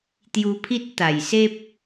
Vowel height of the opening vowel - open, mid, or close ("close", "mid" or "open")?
close